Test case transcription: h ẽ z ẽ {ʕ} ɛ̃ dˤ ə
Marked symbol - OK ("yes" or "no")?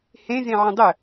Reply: yes